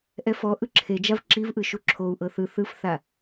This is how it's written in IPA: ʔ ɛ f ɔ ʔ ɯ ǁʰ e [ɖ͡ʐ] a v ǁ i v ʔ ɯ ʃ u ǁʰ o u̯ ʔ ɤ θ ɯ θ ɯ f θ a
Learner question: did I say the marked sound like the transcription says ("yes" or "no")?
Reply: no